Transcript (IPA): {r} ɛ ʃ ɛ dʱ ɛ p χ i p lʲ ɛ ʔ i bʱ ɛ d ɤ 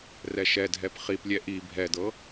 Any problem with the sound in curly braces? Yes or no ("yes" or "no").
no